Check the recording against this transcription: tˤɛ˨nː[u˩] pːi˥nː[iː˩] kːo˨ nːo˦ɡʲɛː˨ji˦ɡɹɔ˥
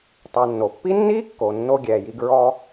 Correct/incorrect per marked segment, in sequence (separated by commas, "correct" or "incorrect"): incorrect, incorrect